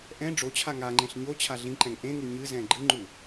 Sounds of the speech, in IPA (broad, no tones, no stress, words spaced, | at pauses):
ʔɛ̃ ɖ͡ʐot͡ɕʰa ŋaŋ͡ǃẽɬ ɲo t͡ɕʰaɮĩǃɛ̃ŋ ʔẽŋu ɲɨzɛ̃ ɡ͡ǃɨŋ͡ǃu